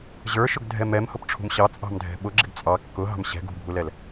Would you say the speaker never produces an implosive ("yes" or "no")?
no